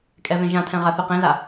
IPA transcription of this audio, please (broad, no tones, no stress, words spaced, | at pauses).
kʼɛvẽʒãtʰɛ̃ ʁaθyqẽza